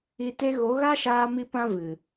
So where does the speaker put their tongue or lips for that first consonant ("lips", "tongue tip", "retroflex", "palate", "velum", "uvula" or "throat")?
tongue tip